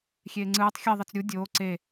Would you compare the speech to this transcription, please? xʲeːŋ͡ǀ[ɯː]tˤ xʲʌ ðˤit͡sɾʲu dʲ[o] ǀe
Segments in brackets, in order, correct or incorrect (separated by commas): correct, incorrect